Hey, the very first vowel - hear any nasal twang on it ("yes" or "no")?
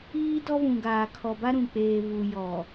no